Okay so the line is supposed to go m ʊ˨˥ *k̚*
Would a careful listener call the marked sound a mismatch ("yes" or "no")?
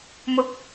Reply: no